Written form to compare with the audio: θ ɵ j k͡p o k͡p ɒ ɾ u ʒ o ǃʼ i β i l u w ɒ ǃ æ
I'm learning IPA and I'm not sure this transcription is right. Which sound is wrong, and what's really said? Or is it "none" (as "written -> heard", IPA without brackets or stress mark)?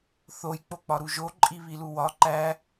ɵ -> o